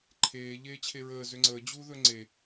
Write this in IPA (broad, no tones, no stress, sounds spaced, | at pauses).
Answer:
ǃʰ eː ʎ eː t͡ɕʰ e ɹ əː z ʏ ŋ͡ǀ əː d͡ʑ uː ð ɵ ŋ͡ǀ e